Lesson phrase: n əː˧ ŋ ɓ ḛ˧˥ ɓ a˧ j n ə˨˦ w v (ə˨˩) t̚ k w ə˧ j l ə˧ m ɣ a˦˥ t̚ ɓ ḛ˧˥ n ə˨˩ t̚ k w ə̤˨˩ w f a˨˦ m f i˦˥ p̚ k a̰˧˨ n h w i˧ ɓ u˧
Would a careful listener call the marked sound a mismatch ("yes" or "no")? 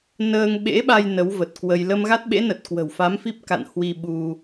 no